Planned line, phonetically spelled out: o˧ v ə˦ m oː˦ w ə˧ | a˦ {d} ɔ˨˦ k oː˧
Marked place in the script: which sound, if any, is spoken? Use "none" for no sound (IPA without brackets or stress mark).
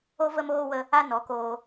n